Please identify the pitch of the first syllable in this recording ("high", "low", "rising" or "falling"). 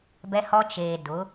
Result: high